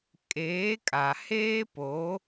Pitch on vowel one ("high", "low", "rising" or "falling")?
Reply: rising